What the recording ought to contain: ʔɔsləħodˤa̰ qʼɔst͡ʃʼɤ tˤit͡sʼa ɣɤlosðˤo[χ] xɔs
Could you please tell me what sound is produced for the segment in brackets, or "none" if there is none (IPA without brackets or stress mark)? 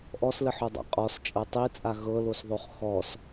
χ